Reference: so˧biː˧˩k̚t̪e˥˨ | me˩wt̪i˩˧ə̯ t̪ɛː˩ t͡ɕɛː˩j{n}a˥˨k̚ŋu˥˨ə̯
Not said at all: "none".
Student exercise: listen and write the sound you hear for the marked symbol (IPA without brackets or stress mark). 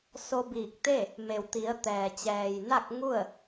n